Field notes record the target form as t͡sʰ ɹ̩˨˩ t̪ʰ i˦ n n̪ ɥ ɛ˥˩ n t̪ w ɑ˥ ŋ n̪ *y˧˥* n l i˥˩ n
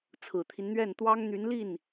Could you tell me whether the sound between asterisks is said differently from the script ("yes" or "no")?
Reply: no